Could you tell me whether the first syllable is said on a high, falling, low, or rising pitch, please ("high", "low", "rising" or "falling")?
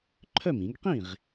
falling